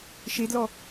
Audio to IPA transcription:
ʃ e d l ɔ

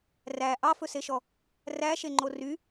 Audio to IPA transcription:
r æ ʔ ɑ f ɵ s e ʃ ɔ | r æ ʃ e ŋ͡ǃ o r y

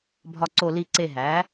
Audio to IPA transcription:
bʱ ɒ˧˩ ǀ o˧˩ l i˧˩ ǀ e˧˩ ɦ æ˩˥

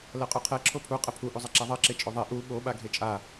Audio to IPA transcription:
l ɜ qʼ u qʰ ɛ ǁʰ o pʰ u qʼ ə pʰ u ʔ u zˤ ɛ ǁ a ðˤ ɜ ǁ e t͡ʃʼ o ðˤ e ʔ u ɓ o ɓ a ɡʱ e t͡ʃʼ a

